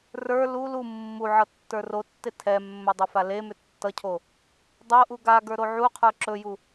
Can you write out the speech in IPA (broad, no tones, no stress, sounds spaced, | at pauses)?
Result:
r ə˞ l u l u mː u ʕ ʌ tː ə˞ r o tː e tʰ ɛ mː ɵ dˤ ɵ f a l e m ʏ tː ʌ cʰ o | dˤ o ʔ u ɡ a ɡ ə˞ ɾ o ʕ u qʰ ə˞ ǁ ɵ j u